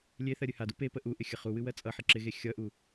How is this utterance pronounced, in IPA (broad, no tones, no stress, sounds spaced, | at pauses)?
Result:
lʲ e θ ɜ ɾʲ ɨ h a d u p e p ə ʔ u ʔ ɪ xʲ ə χ u w ɨ w ɜ t͡sʼ ʌ ħ ɪ ǁ ɪ ɣ e xʲ ʌ ʔ u